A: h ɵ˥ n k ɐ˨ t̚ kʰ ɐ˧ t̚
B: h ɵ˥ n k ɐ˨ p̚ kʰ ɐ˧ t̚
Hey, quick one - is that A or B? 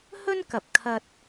B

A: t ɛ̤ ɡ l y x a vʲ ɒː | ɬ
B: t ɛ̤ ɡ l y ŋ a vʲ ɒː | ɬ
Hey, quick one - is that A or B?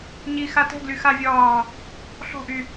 A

